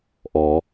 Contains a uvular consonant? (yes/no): no